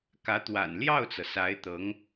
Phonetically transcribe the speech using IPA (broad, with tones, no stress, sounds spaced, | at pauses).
k ä˧˥ t̪ w a̰˨˩ n l j ɑ˥˩ ʊ̯ t͡s ɤ˩ s a˧˥ ɪ̯ t̪ ɤ˧˥ ŋ